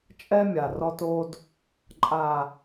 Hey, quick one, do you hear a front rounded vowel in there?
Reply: no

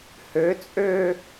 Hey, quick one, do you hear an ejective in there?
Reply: yes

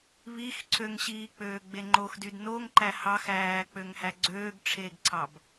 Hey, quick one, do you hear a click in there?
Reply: yes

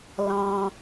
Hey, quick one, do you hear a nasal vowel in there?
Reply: yes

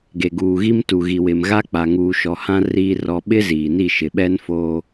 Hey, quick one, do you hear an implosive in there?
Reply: yes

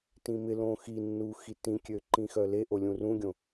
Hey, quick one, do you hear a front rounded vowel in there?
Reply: yes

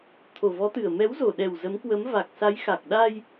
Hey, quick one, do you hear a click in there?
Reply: no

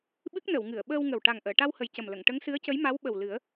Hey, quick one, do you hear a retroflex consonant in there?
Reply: yes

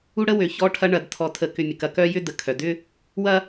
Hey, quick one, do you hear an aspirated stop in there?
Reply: yes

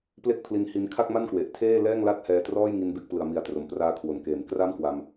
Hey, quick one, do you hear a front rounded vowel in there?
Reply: no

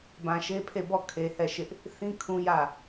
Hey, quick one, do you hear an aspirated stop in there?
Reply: yes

